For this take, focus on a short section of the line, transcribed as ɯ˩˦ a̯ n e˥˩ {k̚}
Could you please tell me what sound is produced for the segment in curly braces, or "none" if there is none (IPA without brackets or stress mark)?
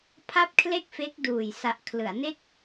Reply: k̚